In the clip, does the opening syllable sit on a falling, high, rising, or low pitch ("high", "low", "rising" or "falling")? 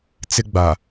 high